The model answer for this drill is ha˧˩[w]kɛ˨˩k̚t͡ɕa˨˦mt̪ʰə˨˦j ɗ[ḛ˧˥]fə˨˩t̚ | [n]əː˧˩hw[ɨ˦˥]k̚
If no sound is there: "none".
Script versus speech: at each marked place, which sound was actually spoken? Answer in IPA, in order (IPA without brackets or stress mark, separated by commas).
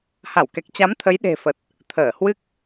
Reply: w, e̤˨˩, t̪ʰ, ɨ˦˥